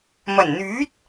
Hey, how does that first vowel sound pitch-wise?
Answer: low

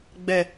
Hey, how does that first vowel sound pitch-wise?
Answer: low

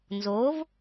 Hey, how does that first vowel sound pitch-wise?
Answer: rising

